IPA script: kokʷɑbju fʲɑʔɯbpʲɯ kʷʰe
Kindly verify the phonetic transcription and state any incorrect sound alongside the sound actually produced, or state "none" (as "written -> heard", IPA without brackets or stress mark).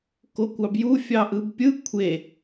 none